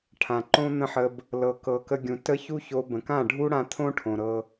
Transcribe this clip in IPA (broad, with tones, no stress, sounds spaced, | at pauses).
ʈʰ ã˨ ǃ õ˦ n̪ ə̃˦ ħ ə˧ b | l ɤ˨ k ɤ˨ k ə˧ ɡʲ ũ˨ t ə˦ ç u˦ ç o˧ b ə̃˨ k ã˦˨ ɖʱ u˦ ɽ ã˧ t̪ʰ õ˦ ʈʰ õ˨ ɾ ɤ˧